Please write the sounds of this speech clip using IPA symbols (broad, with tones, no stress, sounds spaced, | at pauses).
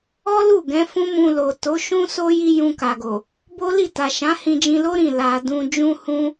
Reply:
ɔ˦ l u˦˨ ɡ ɛ̃˨˦ f ũ˦ m ũ˧ l o˨ t o˨˦ ʃ ũ˦ s o˦ j i˦ j ũ˧ k a˨ ɡ o˨ | b o˦ l i˦˨ t a˨ ʃ ã˨˦ h ĩ˧ d͡ʒ ĩ˧ l o˦ ɾ ĩ˦˨ l a˨ d ũ˧ d͡ʒ ũ˦ h ũ˦